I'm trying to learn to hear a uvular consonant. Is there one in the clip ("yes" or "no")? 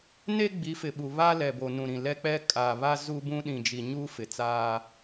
no